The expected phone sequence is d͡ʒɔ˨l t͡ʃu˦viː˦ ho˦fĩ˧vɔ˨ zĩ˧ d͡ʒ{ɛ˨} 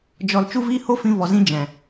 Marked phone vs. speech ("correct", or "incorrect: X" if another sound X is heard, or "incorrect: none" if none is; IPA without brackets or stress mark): incorrect: ɛ̃˨